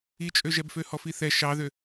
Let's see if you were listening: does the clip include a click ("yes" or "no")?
no